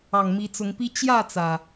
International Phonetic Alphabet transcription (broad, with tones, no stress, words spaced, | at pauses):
ɑ˨˩ŋmi˨˦t͡sʊ˨˦ŋpi˦ t͡ɕjä˥˨t͡sä˩